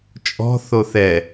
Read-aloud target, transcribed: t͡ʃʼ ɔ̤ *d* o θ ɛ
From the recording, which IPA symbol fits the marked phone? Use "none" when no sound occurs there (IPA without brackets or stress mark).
θ